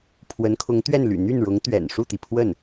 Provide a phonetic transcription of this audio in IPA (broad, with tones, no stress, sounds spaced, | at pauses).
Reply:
pʰ w ə˧˥ n kʰ ʊ˧˥ ŋ t̪ ɥ ɛ˥˩ n l y̰˨˩ n̪ y˥˩ n ɻ ʊ˧˥ ŋ t̪ ɥ ɛ̰˨˩ n ʂ u˥˩ t̪ i˩ pʰ w ə˥˩ n